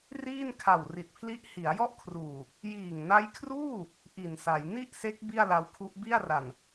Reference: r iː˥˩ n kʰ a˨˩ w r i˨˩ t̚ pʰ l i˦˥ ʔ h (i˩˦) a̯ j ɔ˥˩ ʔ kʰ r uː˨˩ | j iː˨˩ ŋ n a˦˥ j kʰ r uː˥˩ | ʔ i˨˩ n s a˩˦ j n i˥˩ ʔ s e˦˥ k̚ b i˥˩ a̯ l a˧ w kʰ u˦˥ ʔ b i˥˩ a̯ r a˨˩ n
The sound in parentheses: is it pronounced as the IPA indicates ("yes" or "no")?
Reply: yes